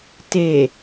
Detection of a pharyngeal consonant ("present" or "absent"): absent